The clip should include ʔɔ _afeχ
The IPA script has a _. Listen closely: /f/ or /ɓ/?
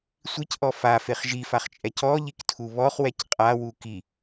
f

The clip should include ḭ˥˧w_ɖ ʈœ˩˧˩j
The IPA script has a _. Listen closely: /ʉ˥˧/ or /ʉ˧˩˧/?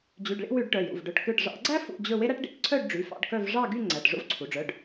ʉ˧˩˧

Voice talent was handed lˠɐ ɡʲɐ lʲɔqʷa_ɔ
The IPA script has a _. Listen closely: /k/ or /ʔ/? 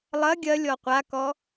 k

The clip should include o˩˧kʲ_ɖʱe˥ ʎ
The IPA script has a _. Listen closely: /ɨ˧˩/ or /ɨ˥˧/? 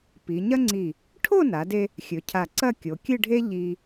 ɨ˥˧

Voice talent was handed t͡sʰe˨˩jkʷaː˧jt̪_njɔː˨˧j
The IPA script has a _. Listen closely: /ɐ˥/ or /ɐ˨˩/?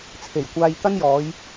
ɐ˥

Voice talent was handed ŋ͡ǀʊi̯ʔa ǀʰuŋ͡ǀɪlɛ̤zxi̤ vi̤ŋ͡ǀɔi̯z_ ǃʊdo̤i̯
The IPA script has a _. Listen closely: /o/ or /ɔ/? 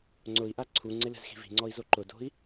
o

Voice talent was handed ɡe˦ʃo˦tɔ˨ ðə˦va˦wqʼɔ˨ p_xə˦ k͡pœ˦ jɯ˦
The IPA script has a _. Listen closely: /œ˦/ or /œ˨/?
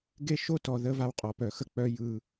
œ˨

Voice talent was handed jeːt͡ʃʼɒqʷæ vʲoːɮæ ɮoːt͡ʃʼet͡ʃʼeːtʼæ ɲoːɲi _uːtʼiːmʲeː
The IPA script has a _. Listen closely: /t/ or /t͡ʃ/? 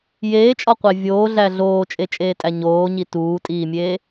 t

